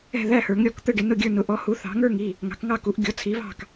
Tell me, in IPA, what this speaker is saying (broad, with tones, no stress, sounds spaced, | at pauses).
ɛ̤˥˩ ð æ˥˩ h ə˞˩˥ ŋ ɾʲ ɔ˥˩ k t̪ ə˥˩ ɖ ɪ˩˥ n ʊ˥˩ ɡʲ ə˞˥˩ n ʊ˩˥ ʔ ɔ˩˥ h u˩˥ θ ɑ̤˩˥ ŋ ə˞˥˩ ŋ i˥˩ | ŋ ɑ̤˩˥ k ŋ ɑ˥˩ k u˩˥ ʔ ɡʲ ɔ˩˥ t͡sʰ i˩˥ β ɑ̤˥˩ k